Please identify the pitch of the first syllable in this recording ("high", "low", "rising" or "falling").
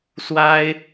high